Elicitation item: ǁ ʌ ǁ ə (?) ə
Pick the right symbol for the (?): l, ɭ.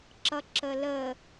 l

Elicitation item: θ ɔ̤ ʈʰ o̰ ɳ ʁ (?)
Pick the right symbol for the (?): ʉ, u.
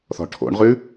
ʉ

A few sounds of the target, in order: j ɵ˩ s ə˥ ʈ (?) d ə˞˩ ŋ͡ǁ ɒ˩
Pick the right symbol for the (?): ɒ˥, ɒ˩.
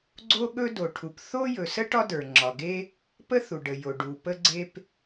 ɒ˥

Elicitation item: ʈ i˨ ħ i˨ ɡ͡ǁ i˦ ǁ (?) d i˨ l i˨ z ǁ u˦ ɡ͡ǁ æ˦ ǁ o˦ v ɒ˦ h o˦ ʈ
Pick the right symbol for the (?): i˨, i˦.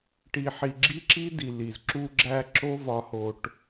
i˦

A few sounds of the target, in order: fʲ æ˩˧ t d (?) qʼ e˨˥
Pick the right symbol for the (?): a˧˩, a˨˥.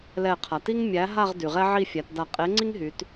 a˧˩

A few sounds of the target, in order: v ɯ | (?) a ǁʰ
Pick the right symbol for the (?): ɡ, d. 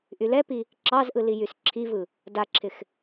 d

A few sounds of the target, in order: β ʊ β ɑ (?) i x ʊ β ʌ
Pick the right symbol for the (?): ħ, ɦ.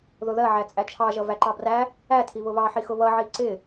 ħ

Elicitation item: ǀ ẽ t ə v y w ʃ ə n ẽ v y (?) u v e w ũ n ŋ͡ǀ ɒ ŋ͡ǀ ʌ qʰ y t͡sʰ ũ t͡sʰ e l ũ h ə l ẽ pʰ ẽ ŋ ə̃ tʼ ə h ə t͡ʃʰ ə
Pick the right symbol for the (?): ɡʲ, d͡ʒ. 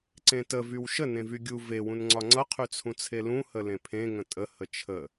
ɡʲ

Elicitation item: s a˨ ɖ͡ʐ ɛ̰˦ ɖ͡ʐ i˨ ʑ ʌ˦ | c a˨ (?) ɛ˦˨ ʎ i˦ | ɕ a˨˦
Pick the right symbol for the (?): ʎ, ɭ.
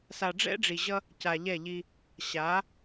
ʎ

